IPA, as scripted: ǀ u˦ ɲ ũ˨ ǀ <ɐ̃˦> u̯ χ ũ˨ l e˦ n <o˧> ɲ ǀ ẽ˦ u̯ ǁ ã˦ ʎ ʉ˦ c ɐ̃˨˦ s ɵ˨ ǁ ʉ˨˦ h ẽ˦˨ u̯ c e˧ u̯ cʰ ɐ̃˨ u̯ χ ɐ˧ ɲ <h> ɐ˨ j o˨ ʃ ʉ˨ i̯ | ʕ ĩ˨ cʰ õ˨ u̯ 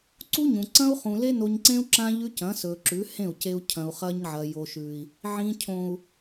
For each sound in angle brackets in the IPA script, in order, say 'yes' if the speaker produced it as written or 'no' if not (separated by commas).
yes, yes, no